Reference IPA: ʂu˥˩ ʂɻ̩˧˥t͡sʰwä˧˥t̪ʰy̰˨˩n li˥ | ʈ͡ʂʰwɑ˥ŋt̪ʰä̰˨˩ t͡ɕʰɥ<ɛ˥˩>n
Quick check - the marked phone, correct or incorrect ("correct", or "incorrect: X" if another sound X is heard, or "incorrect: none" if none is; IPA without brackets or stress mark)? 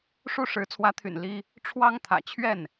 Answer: correct